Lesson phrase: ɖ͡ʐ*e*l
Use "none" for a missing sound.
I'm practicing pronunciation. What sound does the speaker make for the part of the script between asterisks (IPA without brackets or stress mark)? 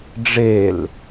e